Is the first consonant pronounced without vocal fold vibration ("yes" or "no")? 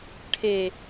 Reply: yes